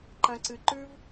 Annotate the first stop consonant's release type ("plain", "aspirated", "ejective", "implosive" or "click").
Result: click